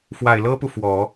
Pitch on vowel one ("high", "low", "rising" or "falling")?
low